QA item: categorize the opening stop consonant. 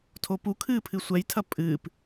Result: aspirated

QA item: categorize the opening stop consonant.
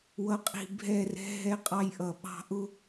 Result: ejective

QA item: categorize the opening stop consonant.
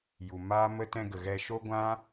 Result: plain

